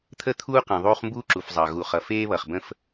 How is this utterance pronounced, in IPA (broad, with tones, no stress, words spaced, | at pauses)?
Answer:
t̪ʰə˦t̪ʰuː˦ qĩ˨ ðˤuː˦χmbuː˦ǁu˨fzˤɑ˨ ɣu˨ χʌ˨feː˦βʌ˨χbə̃˦f